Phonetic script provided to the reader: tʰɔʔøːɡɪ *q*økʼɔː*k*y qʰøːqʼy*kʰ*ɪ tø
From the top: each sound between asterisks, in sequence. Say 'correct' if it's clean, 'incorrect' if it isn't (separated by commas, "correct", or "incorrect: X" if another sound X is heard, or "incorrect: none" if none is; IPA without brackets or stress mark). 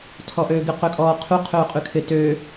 correct, incorrect: qʰ, correct